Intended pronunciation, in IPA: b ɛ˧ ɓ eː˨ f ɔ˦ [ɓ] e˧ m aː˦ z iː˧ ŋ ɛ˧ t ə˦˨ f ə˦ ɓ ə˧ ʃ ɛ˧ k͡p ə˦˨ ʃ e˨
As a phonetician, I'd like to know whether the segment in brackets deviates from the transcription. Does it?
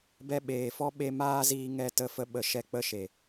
no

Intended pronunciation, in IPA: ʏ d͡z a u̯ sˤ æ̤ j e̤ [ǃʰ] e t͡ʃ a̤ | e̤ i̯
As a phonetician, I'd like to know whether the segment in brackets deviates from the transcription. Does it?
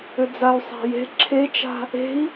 yes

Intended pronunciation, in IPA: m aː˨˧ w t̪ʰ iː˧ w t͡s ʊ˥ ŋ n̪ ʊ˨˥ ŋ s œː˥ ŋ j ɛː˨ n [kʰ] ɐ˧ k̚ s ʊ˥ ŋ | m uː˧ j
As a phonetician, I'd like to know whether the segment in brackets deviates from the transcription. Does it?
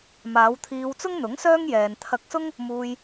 yes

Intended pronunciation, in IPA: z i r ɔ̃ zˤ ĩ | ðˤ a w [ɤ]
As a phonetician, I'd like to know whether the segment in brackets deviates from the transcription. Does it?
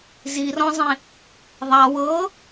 no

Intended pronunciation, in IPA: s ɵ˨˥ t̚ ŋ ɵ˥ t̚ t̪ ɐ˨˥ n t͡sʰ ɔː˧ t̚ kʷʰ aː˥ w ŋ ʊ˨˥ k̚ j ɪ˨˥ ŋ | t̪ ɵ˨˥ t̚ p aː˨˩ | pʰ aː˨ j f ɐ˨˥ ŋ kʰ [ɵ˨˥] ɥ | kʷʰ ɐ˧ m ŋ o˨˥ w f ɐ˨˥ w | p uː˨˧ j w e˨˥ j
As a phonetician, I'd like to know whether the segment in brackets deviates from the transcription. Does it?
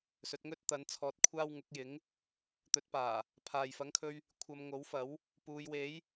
yes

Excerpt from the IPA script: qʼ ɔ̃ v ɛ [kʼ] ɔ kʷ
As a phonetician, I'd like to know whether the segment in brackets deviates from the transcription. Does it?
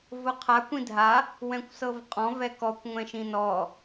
yes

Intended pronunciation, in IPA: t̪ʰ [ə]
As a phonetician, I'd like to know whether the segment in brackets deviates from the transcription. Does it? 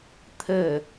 no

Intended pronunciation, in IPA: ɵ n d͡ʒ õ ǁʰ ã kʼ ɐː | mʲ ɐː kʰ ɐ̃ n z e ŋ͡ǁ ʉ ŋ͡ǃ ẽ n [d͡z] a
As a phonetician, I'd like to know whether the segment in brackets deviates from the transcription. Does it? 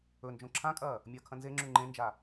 yes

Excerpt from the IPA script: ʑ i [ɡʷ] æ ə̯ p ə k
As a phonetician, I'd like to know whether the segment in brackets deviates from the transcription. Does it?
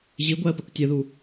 no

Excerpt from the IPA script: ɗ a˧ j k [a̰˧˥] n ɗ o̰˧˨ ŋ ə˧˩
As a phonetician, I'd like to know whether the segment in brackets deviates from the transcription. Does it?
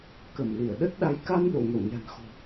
yes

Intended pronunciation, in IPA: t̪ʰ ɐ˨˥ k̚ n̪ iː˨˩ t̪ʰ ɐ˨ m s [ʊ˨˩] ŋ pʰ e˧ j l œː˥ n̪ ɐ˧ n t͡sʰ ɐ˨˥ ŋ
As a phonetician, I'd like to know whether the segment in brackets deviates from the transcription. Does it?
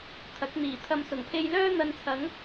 no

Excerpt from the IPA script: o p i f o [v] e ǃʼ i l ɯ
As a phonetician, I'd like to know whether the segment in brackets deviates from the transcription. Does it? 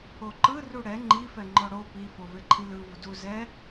no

